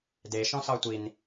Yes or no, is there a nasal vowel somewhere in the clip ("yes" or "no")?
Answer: yes